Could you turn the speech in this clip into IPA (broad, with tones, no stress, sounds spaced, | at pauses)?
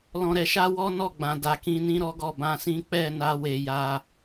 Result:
l ɔ̃˧ ɾ ɛ˧ ʃ a˦ w ɔ˦ n ɔ˦˨ ɡ͡b ã˨ d a˨ k ĩ˧ n ĩ˦ ɾ ɔ˦ ɡ ɔ˦˨ b ã˧ s ĩ˦ k͡p ɛ˦˨ n a˧ w e˨ j a˧